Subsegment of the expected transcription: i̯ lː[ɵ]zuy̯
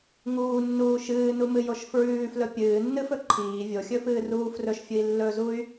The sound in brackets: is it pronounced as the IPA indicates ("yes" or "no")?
yes